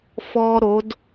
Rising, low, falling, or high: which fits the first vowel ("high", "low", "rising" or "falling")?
high